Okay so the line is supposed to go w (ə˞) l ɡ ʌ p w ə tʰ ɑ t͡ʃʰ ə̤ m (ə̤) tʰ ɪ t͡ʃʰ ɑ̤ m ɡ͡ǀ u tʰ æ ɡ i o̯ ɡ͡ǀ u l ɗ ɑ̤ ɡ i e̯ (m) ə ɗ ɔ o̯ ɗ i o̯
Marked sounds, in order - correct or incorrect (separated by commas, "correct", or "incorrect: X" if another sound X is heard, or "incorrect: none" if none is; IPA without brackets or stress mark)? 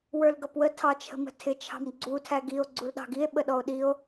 correct, correct, incorrect: ɓ